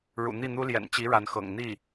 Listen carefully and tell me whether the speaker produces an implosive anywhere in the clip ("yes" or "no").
no